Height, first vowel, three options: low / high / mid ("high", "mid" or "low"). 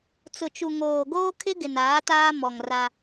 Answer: high